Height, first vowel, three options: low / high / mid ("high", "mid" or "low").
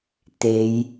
mid